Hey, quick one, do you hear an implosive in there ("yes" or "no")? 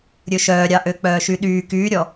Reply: yes